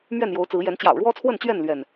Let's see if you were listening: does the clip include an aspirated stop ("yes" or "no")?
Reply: yes